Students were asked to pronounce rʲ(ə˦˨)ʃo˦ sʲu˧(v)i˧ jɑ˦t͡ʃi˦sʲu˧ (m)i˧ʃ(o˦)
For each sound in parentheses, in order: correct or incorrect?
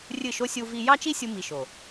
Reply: incorrect: ɨ˦˨, correct, correct, incorrect: o˨

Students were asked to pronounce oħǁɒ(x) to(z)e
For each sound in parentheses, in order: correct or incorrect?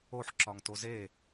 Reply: incorrect: ŋ, correct

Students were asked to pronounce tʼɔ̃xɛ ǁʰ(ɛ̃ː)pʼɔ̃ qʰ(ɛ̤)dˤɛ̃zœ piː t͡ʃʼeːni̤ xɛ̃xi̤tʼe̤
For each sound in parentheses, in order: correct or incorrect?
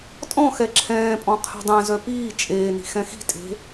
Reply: correct, correct

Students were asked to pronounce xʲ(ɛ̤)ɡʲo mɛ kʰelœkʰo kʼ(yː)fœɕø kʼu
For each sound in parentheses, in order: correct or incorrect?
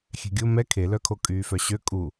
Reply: correct, correct

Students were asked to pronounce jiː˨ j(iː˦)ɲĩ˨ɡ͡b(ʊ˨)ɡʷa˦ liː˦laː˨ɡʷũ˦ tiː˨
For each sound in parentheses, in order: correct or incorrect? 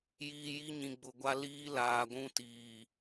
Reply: incorrect: i˦, correct

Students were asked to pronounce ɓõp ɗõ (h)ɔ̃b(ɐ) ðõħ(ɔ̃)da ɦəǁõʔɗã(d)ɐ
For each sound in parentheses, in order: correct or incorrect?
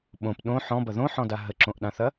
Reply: incorrect: ħ, correct, correct, incorrect: θ

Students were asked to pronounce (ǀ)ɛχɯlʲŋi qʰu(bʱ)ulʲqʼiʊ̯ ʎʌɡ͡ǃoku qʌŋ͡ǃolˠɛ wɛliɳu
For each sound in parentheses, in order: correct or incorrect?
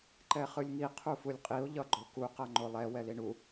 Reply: incorrect: ǃ, incorrect: f

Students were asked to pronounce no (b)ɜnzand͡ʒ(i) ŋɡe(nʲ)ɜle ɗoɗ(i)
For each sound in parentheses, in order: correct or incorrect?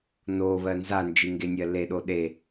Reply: incorrect: β, correct, correct, incorrect: e

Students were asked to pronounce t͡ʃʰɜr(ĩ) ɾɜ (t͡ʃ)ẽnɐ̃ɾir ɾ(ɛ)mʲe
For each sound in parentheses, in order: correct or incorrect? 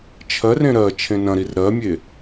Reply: incorrect: ẽ, incorrect: t͡ʃʰ, incorrect: ɜ

